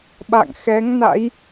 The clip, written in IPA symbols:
ɓ a̰˧˨ ŋ x ɛ˨˦ ŋ n a̰˧˥ j

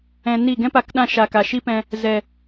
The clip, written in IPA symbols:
ɛ̃˧ n i˦˨ ɡ ɛ̃˦ p a˨˦ k ɗ ã˧ ʃ a˨ k a˨ ʃ i˦ p ɛ̃˧ | z ɛ˨

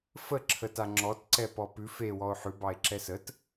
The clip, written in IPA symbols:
f ə ǁʰ ə t a ŋ͡ǁ ɔ t ǀ ɛ p ɔ p ʉ f e w ɔ o̯ ħ ʉ b ɑ e̯ ǁ ɛ s ə t

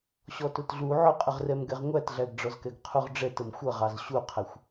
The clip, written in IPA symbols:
ɕ ɔ t ʊ t ɮ u ʕ ʊ qʼ ə ʁ r ɛ m ɡ ɛ ʁ ŋʷ æ t ɮ æ ɡ ɖ͡ʐ ɔ z k ɛ ɡ qʰ u ʁ ɖ͡ʐ ɛ t ə m xʷ ʌ ʁ ɑ z ɕ u qʰ ɛ xʷ

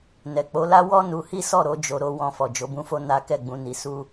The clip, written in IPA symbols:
n ɛ˨ k͡p o˨˦ l a˦ w ɔ˦ n u˧ h i˦ s ɔ˦˨ ɾ o˨˦ d͡ʒ o˧ ɾ o˧ w ɔ̃˧ f ɔ˨ d͡ʒ o˨˦ b ũ˦ f o˦ n a˦ k ɛ˦˨ ɡ͡b ũ˨˦ n i˧ s u˦

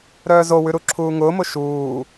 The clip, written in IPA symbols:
ɾ œː z o w ʉ ɾ u ǁʰ uː ŋ ʊː m ʊ ʃ uː

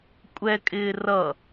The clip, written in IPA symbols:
kʷʼ ɛ kʼ ɪː r ʌ

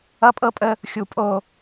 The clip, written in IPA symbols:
ʌ˦ pʼ ɤ˦ pʼ ə˦ | xʲ u˨ pʼ o˨

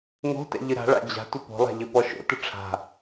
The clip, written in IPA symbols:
ŋ o̤ t ɛ̰ ʎ ɨ ɾ a̤ ɭ a̰ d͡ʑ a̤ tʷ ɘ p o̤ lˠ a̤ ʎ ɘ p ɔ ʃ o̰ t ɨ ʈ͡ʂʰ a̤

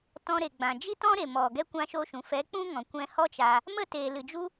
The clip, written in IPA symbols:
t ɔ̃˧ ɾ e˨ ɡ͡b ã˨ d͡ʒ i˦ t ɔ̃˦ ɾ e˨ m ɔ˨ ɡ ɛ˧ kʷ ã˧ ʃ o˧ ʃ ũ˨ f ɛ˨˦ k͡p ũ˦ ŋ ɔ̃˨ kʷ ɛ̃˧ h ɔ˦ t͡ʃ aː˧ | m ə˦˨ t eː˨ l ɨ˨ d͡ʒ u˦

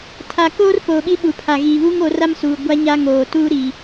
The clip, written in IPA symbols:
tʰ a˨ k oː˦ r p oː˨ ɓ i˦ ɓ u˨ pʰ a˨ ɣ iː˨ β uː˦ ŋ o˨˦ r a˦ m s uː˨ ɡʷ a˦ ɲ a˦ ŋ oː˨ t uː˦ ɾ i˨

